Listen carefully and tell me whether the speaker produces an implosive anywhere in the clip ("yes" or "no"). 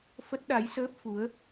yes